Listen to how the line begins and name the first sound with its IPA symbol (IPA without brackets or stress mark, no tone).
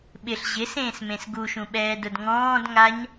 ɓ